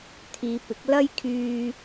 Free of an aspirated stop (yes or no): no